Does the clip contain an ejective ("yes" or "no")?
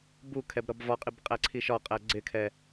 yes